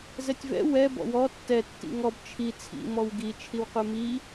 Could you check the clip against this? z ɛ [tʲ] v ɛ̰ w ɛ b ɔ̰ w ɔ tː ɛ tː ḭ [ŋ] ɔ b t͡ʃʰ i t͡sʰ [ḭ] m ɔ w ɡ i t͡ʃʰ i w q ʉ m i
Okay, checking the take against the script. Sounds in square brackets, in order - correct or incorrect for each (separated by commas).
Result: correct, correct, correct